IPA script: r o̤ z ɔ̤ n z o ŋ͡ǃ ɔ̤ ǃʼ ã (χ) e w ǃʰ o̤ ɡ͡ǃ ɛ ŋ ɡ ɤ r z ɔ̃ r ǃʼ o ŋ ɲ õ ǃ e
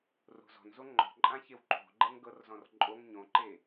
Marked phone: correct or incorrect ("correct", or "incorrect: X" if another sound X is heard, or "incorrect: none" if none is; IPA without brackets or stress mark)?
incorrect: ç